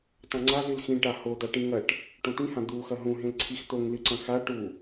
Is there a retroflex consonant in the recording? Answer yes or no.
yes